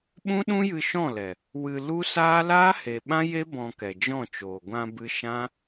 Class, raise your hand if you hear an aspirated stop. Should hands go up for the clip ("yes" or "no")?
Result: no